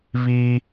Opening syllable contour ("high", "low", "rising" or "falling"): high